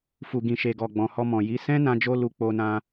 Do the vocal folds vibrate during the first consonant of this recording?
no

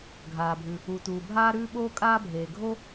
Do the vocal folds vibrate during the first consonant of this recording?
yes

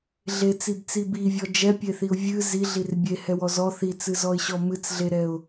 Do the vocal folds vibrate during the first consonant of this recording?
yes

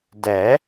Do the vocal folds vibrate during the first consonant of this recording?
yes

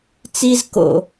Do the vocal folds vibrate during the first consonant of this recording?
no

